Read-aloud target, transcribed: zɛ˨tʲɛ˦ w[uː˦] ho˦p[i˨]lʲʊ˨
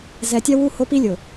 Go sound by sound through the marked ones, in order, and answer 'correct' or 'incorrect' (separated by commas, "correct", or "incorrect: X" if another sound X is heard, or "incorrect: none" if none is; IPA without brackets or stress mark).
incorrect: u˦, incorrect: i˦